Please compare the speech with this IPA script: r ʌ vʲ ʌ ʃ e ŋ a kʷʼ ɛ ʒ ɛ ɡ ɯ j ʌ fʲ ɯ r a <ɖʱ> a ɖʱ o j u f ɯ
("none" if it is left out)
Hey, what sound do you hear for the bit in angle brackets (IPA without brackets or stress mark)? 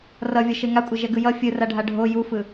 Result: ɖʱ